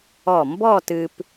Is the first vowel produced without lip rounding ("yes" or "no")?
no